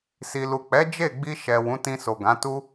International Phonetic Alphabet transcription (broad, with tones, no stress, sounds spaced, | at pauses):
s i˨ l u˨ k͡p ɛ˨˦ d͡ʒ e˦˨ ɡ͡b i˧ ʃ ɛ˨ w ũ˨˦ t ĩ˧ s o˨ ɡ ã˨˦ t u˦